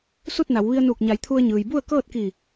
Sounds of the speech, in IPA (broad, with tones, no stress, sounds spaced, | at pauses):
s u˥˨ t̚ n a˩˧ w ʋ i˧ ə̯ n uː˧˩ k̚ ɲ a˩˧ j t̪ʰ u˧ ə̯ ɲ ɯː˩ j b u˥˨ ə̯ k ɤː˥˨ t̚ k i˧˩